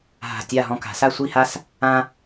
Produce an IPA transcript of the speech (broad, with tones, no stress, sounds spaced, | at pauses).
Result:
ɦ a̤˧˩ tʲ a˥˧ ɦ ɔ̃˧ k a̤˩˧ s a˥˧ sʷ i˥˧ h a˥ s | ã˥